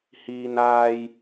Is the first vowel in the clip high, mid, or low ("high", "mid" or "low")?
high